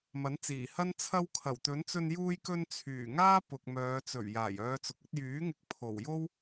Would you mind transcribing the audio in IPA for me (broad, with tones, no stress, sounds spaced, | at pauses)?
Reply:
m ɐ˨˥ n t͡s iː˨˩ h ɐ˥ n t͡sʰ ɐ˧ w kʰ ɐ˨˩ w t̪ ɵ˨˥ n t͡s ɵ˧ n j uː˧ j k ɵ˧ n t͡sʰ yː˨˩ ŋ aː˥ p ʊ˨ k̚ m œː˨˧ t͡s ɵ˨˩ ɥ j aː˨˩ j œː˨˧ t͡s ʊ˨ k̚ ɵ˧ t̚ j yː˨˥ ŋ ɪ˨˥ k̚ pʰ o˨˩ w j o˥ w